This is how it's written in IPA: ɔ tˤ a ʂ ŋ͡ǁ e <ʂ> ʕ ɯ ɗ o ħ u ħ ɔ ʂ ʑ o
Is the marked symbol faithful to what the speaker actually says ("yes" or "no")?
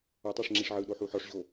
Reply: yes